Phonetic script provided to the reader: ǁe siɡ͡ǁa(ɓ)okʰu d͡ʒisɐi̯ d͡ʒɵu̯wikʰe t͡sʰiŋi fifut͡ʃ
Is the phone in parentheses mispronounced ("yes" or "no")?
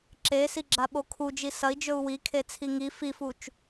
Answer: no